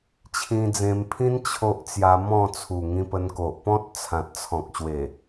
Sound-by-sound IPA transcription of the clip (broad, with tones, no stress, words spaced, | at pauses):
t͡ɕʰĩ˧d͡zẽ˧mpʰĩ˦n t͡ɕʰo˦ʔ t͡sja˧mɔ̃˥˧ t͡sʰu˨˩ŋĩ˧pə˧n ko˨ʔpɔ̃˦t̚ t͡sʰã˨t̚t͡sʰɔ̃˨k̚ɕwe˨˩